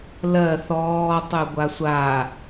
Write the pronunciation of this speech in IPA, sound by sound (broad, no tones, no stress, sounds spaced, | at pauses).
l ɜ θ ɔː tˤ y ɡʷ a sʷ a